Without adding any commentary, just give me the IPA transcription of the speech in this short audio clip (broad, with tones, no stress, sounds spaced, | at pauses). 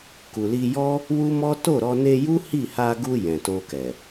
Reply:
k u˨ l i˧ j ɔ˦ | w u˦ m ɔ˦ t o˦˨ ɾ ɔ˧ n e˧ j u˦ h i˦˨ h a˧ ɡ u˧ j ɛ̃˨ t o˧ k ɛ˨